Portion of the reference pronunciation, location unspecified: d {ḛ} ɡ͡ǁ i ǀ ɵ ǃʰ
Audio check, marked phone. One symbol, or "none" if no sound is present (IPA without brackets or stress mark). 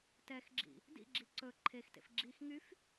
ḭ